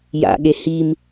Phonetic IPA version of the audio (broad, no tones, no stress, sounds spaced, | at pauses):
j a̰ ɠ e h i m